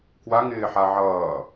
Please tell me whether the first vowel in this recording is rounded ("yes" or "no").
no